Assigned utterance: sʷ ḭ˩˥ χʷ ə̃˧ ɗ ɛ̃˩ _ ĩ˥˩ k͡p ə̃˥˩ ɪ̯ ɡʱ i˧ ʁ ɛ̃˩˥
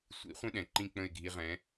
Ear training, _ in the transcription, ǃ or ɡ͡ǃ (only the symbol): ǃ